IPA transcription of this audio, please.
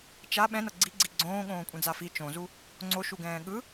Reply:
t͡ʃ a ɓ ɛ̃ n ʌ ɡ͡ǀ i ɡ͡ǀ i ɡ͡ǀ õː ɠ õː kʷʼ ɛ̃ d͡z a f i t͡ʃ õ z u | ŋ͡ǀ o ʃ u ɡ ɛ̃ː ɠ ɯ

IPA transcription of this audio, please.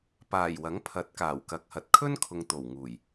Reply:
p aː˨˩ j w ɐ˨˥ ŋ pʰ ɐ˨˥ t̚ k aː˨˩ w k ɐ˨˥ k̚ h ɐ˨˥ t̚ kʰ ɵ˥ n kʰ ʊ˨ ŋ t̪ o˨˩ w ŋ uː˨˩ j

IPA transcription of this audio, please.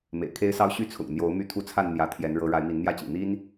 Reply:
m ḛ˨˩ ɪ̯ kʰ e˦ ɪ̯ s ɑ˦ ʊ̯ ɕ y˥˨ t͡sʰ ʊ̰˨˩ ŋ n̪ j o˨˦ ʊ̯ m y˥˨ t̪ʰ u˦ t͡sʰ a˥˨ n n̪ j ä˨˦ t̪ʰ j ɛ˨˦ n ɻ ɤ˨˦ ɻ a˨˦ ɪ̯ m i˨˦ n n̪ j ä˥˨ t͡ɕ ḭ˨˩ n̪ i˦ n

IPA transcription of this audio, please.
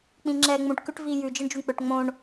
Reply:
k͡p ĩ ŋ͡ǁ ɛː ŋ͡m ũ ʈ k ʉ ʈ v iː j ʉ d͡ʒ ɯ ɳ d͡ʒ u ɳ k͡p ø ʈ ŋ͡m õ ɳ

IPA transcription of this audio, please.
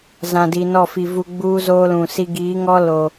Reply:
z ã˨ d i˨ n ɔ˦˨ f i˨ v u˦ ɡ͡b uː˦ z oː˦ l ũ˨ s i˦ ɡ iː˨˦ ŋ ɔ˦ l oː˨

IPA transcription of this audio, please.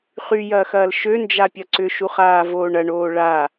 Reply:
χ y j ɐː x ɐː l ʃ ø n d͡ʒ a pʲ ɐ ǀ ʏ ʃ u χ aː v oː ɳ ɐ ɳ oː ɭ a

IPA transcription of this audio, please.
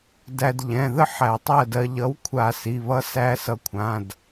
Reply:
d æ˧ d ʎ ɛ̃˩˧˩ ð ə˥˨ ħ æ˧˩˧ tˤ ɜ˥˨ d ɜ˧ ʎ ʌ˨˥ w kʷʰ a˧˩˧ s i˩˧˩ β ʌ˦˥ s æ˦˥ s ʌ˧ kʷʰ ã˩˧˩ d

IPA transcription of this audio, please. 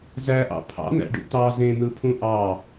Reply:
z æ ʔ ɑ̰ pʰ ɑ̰ n̪ æ̰ ɖ ṵ t̪ ɑ z ẽ n̪ ɯ pʰ ũ ʔ ɑ

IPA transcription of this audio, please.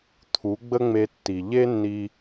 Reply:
t̪ʰ u˨˦ ɡ͡b ə˦ ŋ͡m e˧ tː i˨ ʎ e˦ nː i˧

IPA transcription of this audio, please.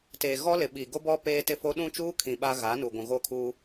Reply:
t eː˨ ɣ ɔ˦ l ɪ˨ ɓ i˨ ɡ o˦ b ɔ˦ p eː˦ t ɪ˦ f o˦ ɗ ũ˦ t͡ʃ uː˦ kʰ ĩ˨ ɓ a˦ ɣ a˨˦ n u˨ ɡʷ ũ˨ ɣ o˦˨ kʰ uː˦

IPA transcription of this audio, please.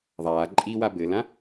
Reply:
ðˤ aː ǃʼ i w a b ɘ l ã

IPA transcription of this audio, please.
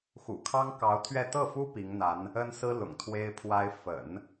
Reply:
x ṵ˨˩ kʰ ɑ˥ ŋ k ɑ˧˥ ʊ̯ t̪ʰ ɥ ɛ˥˧ t̪ ɤ˥˩ f u˥ p i˧˥ ŋ n̪ a˧˥ n | ə˥ n s ɹ̩˥ l ʊ̰˨˩ ŋ t̪ʰ w e˥ ɪ̯ pʰ w a˥ ɪ̯ f ə̰˨˩˦ n

